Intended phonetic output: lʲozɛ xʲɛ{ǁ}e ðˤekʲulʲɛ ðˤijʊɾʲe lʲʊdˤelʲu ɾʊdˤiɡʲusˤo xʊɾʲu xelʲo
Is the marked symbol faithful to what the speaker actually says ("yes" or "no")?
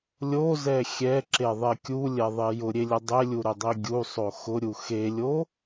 yes